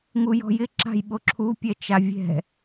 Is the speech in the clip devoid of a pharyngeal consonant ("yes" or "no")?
yes